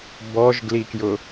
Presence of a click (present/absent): absent